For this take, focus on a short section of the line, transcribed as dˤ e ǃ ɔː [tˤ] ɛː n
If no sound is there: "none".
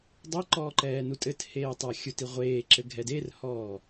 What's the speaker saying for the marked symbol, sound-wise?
ǃ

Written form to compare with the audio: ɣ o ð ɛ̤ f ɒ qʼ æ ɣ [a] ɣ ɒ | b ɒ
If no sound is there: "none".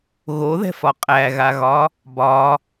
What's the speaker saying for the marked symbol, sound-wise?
a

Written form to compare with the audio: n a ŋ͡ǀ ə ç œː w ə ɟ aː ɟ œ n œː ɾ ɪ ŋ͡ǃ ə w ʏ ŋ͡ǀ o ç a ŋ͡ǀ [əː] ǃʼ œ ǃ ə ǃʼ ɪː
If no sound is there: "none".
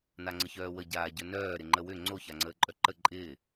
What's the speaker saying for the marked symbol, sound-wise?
əː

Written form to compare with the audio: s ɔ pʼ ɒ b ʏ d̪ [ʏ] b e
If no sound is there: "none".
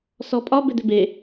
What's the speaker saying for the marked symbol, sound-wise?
ʏ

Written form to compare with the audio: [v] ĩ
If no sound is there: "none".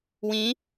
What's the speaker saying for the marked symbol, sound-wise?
w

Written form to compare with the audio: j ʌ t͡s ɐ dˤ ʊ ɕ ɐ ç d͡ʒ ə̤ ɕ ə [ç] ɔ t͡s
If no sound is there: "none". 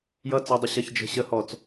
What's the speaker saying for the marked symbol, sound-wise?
h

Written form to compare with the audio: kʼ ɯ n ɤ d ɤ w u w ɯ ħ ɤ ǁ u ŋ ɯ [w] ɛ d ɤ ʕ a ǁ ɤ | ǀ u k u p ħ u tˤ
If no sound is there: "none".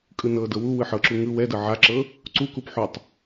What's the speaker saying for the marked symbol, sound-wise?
w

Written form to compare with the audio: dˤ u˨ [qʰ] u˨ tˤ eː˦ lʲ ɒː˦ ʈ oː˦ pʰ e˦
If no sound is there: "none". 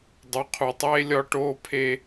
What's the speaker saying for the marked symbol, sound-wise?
qʰ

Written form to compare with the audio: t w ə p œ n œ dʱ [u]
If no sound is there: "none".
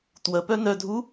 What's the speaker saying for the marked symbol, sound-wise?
u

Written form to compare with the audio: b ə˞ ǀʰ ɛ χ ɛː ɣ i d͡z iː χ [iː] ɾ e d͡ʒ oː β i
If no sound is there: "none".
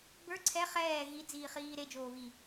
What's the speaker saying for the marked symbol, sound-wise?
iː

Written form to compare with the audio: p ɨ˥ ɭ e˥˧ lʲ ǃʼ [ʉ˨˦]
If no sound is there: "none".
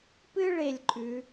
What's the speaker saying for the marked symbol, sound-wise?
ʉ˨˦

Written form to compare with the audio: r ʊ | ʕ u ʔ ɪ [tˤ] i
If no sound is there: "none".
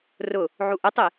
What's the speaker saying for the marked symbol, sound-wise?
tˤ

